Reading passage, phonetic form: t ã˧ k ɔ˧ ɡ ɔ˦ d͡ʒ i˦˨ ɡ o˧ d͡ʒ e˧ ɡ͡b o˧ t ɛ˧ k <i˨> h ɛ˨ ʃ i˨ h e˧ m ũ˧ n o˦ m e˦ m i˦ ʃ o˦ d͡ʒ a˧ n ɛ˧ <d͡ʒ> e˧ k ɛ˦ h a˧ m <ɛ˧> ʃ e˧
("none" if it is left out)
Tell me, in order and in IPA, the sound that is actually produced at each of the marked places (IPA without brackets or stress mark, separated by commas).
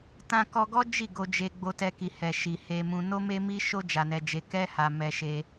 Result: i˨, d͡ʒ, ɛ˧